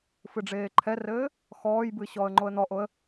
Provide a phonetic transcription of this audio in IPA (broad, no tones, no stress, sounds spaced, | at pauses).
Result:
f ɨ ɖ͡ʐ eː ǃʰ ɛ r ɘː | x ɔː j b ɨ ɕ ɔː ə̯ ŋ͡ǃ o ə̯ n̪ ɔ ʔ o ə̯